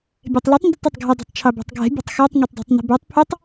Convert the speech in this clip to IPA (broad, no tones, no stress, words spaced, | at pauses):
bʲɛtˤlitˤ ndʊtˤotˤɡʱʊ dˤi̤tˤt͡ʃʰɑbɑ̤tˤɡʱɛ̤ bʲɑ̤tˤxɑtˤ ŋotˤdˤɑ̤tˤni̤bɑtˤ pʰʊtˤ